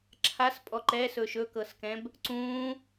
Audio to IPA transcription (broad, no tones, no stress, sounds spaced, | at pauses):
ǁʰ a s pʼ ɔ ǃ ɛ s ɵ ʃ ɵ k ɤ s k ɛ̃ b | ǀ ũ